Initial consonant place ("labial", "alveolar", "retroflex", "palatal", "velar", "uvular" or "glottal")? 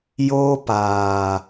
palatal